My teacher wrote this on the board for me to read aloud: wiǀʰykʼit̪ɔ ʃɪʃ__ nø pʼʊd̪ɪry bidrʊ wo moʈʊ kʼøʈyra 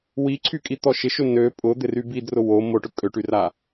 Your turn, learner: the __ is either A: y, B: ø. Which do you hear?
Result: B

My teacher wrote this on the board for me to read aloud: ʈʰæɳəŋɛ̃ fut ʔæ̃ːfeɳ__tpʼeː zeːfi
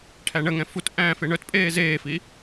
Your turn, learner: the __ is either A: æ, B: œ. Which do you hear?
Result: B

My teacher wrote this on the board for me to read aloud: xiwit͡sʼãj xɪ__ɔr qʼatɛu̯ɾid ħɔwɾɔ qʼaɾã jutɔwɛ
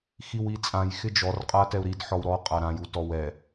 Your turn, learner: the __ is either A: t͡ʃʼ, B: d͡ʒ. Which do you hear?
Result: B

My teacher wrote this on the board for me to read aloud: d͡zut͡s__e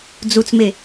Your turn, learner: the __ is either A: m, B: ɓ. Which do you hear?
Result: A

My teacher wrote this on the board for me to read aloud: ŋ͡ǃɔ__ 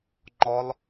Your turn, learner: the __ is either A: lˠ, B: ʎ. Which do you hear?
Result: A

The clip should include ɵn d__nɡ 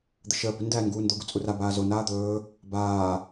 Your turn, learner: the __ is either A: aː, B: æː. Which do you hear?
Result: B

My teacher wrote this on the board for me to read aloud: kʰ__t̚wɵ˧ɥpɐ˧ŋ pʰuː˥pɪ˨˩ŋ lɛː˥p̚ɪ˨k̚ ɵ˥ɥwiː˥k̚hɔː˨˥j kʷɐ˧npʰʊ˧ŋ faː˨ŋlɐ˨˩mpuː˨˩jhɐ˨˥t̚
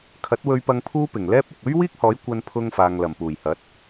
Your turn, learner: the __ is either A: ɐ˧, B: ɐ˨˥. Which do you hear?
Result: B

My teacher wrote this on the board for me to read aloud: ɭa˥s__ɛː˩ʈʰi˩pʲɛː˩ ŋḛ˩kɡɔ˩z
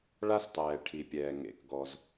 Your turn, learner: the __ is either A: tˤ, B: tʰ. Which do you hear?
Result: A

